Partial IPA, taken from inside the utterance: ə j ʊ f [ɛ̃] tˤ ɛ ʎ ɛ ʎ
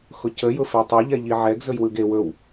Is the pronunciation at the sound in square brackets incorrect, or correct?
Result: incorrect